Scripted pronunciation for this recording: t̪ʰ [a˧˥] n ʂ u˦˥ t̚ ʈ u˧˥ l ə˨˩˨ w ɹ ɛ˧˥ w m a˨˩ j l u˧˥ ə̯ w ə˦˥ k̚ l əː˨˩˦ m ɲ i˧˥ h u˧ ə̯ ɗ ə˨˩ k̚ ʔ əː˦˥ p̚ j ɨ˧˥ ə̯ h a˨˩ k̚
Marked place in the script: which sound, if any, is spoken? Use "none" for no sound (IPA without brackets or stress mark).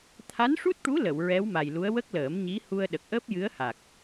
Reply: a˧˥